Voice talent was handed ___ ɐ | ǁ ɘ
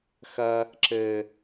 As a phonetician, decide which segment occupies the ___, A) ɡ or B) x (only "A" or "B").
B